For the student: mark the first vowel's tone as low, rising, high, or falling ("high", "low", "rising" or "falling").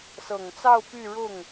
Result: low